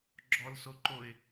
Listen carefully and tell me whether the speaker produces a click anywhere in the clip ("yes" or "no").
yes